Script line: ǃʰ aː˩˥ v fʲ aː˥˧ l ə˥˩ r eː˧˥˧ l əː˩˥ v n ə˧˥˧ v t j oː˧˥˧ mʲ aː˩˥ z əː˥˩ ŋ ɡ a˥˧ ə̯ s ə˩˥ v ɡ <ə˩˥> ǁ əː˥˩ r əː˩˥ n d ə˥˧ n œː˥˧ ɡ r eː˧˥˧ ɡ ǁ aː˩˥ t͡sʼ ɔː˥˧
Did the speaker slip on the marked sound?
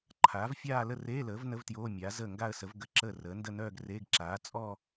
no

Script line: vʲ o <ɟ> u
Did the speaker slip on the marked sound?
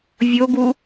yes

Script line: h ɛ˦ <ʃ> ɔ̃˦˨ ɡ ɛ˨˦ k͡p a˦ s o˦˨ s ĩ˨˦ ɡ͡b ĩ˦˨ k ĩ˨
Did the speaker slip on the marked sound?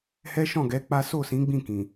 no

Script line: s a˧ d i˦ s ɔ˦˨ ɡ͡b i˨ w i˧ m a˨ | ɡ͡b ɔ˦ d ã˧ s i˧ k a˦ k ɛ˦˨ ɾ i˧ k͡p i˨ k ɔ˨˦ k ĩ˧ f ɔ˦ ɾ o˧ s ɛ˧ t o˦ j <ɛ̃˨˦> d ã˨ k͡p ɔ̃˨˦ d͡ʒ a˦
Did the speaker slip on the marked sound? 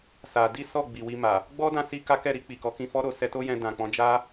yes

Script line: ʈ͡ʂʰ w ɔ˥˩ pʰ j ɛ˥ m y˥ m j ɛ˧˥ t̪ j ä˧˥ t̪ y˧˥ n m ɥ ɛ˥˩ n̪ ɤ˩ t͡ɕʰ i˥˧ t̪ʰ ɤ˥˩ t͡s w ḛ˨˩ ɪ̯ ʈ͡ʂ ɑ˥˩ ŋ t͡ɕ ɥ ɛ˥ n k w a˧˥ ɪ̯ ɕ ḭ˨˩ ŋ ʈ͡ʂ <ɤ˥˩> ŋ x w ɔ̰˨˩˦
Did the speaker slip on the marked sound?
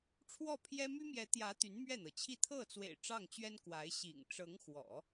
yes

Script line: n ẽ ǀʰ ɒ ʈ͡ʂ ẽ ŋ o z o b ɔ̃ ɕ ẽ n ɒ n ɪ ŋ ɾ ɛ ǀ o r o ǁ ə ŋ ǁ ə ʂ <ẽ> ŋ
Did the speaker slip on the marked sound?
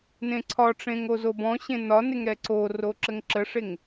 yes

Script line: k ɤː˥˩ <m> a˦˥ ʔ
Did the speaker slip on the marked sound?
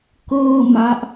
no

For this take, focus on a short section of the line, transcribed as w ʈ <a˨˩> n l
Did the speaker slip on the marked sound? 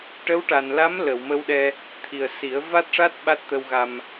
no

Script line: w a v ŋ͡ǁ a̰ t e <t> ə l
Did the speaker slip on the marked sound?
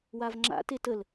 no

